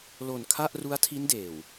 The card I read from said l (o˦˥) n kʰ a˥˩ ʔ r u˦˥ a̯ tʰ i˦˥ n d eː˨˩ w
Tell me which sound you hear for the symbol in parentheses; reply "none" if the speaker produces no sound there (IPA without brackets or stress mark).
o˨˩